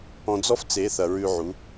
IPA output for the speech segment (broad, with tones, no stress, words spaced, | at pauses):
ɔ̃˧d͡zɔ˦ft͡se˨˦θɐ˨ ɹʉ˧ʕu˨˦